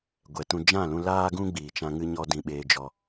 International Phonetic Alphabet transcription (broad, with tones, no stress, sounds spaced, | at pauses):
ɡʷ ɛ˨ t ũ˧ d͡ʒ ã˦˨ l ũ˧ l aː˦ ɡ ũ˦ ɡ͡b iː˨ t͡ʃ ã˧ ŋ ɨ˧ ɲ ɔ˧ d ĩ˧ ɓ eː˧ d͡ʒ ɔ˧